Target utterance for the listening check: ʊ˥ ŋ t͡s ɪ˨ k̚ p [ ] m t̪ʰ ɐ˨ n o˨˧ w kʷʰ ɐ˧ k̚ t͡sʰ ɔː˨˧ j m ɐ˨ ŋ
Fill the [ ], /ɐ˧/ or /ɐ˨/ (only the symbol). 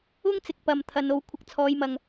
ɐ˨